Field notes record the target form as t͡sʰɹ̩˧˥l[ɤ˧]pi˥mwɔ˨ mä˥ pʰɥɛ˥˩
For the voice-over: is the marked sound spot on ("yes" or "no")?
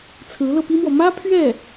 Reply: yes